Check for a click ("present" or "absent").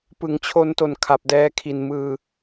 absent